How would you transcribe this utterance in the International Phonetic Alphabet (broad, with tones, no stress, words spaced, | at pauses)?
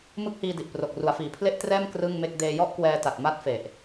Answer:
mɯ˥˩k̚hiː˧di˨˩ʔpro˨˩k̚ ru˩˦a̯fiː˩˦pʰle˥˩ʔtrɛː˥˩m krɯ˥˩ŋme˥˩k̚ deː˧jɔ˥˩ʔkwɛː˧ta˨˩t̚ ma˥˩t̚fe˨˩ʔ